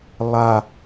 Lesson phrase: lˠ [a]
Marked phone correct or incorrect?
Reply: correct